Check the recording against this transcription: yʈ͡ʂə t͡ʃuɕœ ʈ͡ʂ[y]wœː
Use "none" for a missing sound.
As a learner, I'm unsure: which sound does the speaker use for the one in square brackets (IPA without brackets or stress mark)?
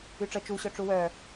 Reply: u